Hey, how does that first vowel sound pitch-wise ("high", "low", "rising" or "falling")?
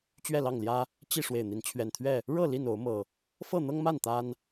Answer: falling